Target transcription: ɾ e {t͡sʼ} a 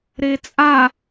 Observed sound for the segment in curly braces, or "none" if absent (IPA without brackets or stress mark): t͡sʼ